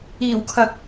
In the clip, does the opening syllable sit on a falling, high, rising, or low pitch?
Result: low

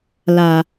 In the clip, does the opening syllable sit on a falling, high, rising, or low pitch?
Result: low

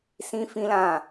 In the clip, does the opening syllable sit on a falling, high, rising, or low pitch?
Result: high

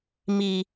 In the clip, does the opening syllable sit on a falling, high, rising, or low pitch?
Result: high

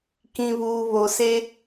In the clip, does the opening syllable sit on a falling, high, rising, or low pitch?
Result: low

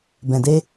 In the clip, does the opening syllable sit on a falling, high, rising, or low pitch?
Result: low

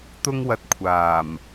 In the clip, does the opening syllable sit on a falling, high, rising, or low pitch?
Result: high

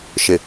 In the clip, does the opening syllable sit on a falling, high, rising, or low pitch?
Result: low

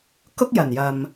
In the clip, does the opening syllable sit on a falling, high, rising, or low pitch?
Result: high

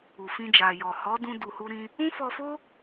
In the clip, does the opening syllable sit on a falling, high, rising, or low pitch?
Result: low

